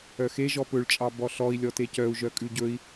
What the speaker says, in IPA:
œ x e ʒ ɔ p ɵ ɭ t͡ʃʼ ɑ b ɔ ɬ ɔ i̯ lʲ ɔ t e c œ u̯ ʒ œ kʼ ʉ ɟ ɵ i̯

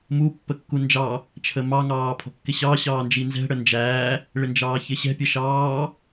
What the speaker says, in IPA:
m u pː ə kː u n d͡ʒ ɑ | t͡ʃʰ ə m ɑ ŋ ɑː pʰ ɔ̤ kː ɪ ɕ ɑ ɕ ɑː n d͡ʒ i n z ɛ̤ ɽ ə n d͡ʒ æː | ɭ ɪ n d͡ʒ ɑː ç ɪ ɕ ɛ̤ pʲ ə ʃ ɑː

